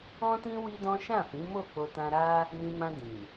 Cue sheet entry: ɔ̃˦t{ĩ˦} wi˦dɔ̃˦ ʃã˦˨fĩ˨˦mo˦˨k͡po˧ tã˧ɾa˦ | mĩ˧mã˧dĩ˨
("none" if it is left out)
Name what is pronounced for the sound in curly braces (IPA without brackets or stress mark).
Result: ĩ˦